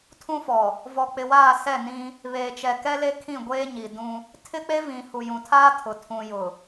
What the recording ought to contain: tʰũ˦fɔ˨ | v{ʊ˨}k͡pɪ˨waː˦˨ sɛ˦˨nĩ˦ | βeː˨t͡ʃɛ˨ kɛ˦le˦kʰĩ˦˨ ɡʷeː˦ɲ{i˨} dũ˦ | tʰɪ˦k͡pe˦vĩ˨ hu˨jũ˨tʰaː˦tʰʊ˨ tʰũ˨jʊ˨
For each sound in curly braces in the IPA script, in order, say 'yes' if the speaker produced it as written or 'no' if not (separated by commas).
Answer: no, yes